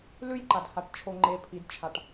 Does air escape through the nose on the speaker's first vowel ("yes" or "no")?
no